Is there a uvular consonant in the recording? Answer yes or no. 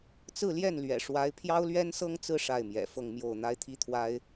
no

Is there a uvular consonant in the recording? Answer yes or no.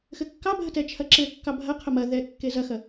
yes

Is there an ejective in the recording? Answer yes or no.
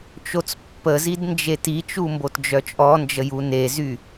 yes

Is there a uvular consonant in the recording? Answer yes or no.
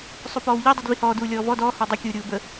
no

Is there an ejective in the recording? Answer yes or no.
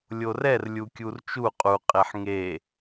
yes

